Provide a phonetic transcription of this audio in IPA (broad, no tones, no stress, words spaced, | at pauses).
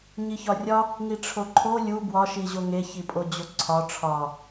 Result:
ɲiçɒrʲɒ | ŋiʈ͡ʂʰoǃʰo lʲu bwɒʃiʑo ŋeçipʼod͡ʑo ǀʰɒ ʈ͡ʂʰɒ